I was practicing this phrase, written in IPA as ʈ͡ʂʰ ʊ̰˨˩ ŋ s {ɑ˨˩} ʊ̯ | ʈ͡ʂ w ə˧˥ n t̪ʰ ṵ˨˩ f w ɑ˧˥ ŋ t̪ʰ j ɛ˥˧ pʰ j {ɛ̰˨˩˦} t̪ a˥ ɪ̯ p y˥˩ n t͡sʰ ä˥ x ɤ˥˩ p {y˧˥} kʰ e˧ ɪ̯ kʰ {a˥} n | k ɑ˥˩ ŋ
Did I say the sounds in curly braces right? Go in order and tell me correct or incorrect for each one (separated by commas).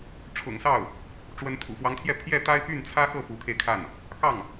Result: incorrect, incorrect, incorrect, incorrect